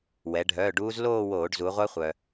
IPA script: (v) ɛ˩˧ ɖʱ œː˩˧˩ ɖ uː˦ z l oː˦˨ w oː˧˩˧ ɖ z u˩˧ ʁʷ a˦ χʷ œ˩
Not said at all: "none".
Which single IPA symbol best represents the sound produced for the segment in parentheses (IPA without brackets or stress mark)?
w